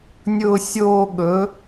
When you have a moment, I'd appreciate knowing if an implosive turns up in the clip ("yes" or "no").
yes